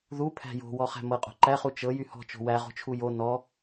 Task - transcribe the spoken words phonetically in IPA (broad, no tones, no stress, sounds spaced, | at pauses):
ð u pʰ æ̤ j o̤ w ɔ χ æ̤ m ɤ qʼ o̤ ǃ æ χ u t͡ʃ ɤ j y h ɔ̤ t͡ʃ o̤ w æ ʁ o̤ t͡ʃʰ u j o n ɔ